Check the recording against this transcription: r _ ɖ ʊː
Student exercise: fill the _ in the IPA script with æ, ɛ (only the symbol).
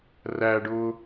æ